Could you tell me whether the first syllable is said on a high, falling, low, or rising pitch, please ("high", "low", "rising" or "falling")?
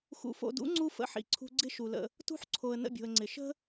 low